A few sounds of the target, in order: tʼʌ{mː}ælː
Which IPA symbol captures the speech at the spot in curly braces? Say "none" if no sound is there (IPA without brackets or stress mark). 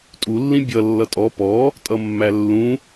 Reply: mː